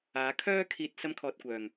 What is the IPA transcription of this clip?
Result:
aː˨˧ kʰ œː˥ kʰ iː˧ t̚ s ɐ˥ m kʰ ɔː˧ t̚ kʷ œː˨ ŋ

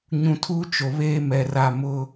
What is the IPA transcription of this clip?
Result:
ɲ ũ˨ tʰ uː˦ t͡ʃ o˨ β eː˦ m ɛ˨ r a˦˨ m ʊ˦

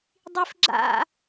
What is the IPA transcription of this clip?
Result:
dˤ i f ɡ͡ǁ a̰

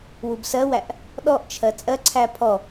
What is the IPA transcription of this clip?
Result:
w u b s ɜ w æ ʔ | ɗ ɔ ʔ t͡ʃʰ ɜ t͡sʼ ɜ ǀʰ æ pʰ ɔ

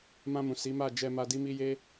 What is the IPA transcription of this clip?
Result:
m ã˧ m ũ˨ s i˨˦ m a˦˨ d͡ʒ ɛ˧ m a˧ d i˦ m i˦ j e˦

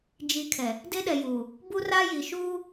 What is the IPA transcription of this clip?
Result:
d͡ʒ i˨˦ kʰ ɛ˨ | d e˦ ɗ ɛ˨ j uː˨ | b u˦ r a˦ j i˨ ʃ uː˦

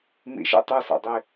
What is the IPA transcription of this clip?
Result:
m ḭ ʃ ɛ̰ tˤ ø s a̰ dˤ i

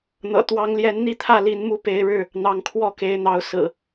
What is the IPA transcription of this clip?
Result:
n̪ ɤ̰˨˩ t̪ w ɑ˨˦ ŋ l j ɛ˨˦ n n̪ i˥˨ t̪ʰ ä˥˨ l i˨˦ n m u˦ p e˨˦ ɪ̯ ɻ ɻ̩˥˨ | n̪ ɑ˨˦ ŋ kʰ w ɔ˥˨ k e˨˦ ɪ̯ n̪ ɑ˨˦ ʊ̯ s ɹ̩˨˩

